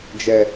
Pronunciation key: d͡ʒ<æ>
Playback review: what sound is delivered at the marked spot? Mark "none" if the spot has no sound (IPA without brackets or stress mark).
ɛ